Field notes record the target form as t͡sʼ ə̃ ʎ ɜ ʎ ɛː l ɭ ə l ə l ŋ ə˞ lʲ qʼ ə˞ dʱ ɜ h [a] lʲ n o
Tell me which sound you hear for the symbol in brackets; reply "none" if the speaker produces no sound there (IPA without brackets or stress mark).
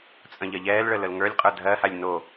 a